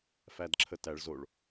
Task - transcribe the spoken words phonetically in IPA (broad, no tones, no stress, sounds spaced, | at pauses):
f æ d ǁʰ ə t æ ɭ z o ɭ